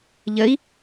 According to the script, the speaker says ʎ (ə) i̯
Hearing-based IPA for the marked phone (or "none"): ə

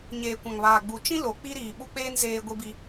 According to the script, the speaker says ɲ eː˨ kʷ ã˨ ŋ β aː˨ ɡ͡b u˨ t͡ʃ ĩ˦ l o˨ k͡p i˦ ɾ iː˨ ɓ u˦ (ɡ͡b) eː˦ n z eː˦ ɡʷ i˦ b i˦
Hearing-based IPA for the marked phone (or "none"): k͡p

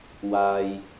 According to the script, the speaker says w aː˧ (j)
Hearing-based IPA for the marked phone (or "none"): j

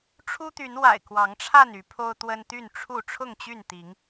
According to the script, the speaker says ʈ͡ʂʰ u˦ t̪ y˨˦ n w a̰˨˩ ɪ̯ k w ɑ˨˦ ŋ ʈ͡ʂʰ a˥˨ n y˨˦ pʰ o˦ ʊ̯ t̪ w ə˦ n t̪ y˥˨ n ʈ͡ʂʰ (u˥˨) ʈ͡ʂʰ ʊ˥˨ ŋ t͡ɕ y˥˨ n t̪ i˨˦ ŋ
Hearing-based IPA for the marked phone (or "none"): u˥˨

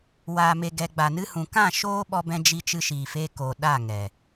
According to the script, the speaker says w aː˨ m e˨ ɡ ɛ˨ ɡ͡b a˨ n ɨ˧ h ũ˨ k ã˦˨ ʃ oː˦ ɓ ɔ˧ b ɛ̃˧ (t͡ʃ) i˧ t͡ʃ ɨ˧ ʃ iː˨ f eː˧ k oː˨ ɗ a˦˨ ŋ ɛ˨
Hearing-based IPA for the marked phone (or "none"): d͡ʒ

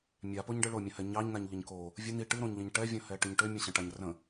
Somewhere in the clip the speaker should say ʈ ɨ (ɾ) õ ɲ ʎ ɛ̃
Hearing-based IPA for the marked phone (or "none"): ɾ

